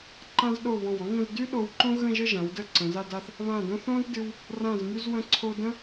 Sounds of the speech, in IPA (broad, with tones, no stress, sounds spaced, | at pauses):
ǃ ã˧ z ɗ o˧˩ β ɔ̃˧˩ w ɔ̃˥ ŋ ə̃˥˧ z d y˥ ɗ o˧ w ǃ õ˥ ɣ ə̃˥˧ ʒ ə˥˧ ʒ ã˩˧ w d ə˧ ǀ ə̃˩˧ z a˥˧ d a˥˧ θ | β ã˧˩ d õ˧ θ õ˥ z d ɨ˧ w | r ã˧˩ z m y˧ z w ə̃˧ ǀʰ o˧ d ə̃˥